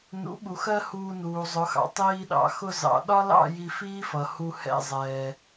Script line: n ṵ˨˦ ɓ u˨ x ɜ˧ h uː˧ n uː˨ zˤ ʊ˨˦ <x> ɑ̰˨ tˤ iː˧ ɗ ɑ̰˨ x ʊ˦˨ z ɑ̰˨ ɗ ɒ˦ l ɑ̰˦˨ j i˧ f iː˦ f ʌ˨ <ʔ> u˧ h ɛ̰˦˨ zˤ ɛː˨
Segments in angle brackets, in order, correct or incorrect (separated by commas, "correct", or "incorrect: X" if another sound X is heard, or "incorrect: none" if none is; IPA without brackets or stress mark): correct, incorrect: h